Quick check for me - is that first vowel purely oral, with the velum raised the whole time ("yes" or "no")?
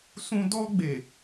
no